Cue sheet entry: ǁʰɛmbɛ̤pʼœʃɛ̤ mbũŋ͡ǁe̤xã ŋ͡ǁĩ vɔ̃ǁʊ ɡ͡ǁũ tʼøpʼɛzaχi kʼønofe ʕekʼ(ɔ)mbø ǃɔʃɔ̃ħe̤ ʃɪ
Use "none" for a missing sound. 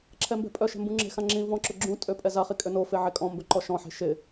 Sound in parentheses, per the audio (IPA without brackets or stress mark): ɔ̃